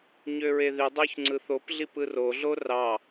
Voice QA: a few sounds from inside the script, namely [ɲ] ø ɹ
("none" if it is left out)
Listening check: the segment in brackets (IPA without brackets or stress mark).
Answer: ɲ